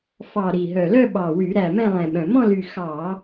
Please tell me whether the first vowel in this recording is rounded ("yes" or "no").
no